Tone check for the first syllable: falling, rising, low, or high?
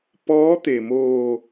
rising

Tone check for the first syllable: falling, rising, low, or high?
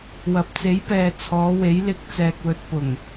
low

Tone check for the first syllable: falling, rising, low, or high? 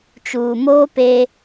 low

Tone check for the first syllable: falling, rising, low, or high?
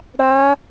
high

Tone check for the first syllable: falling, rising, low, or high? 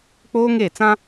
high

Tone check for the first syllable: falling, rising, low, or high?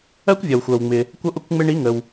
high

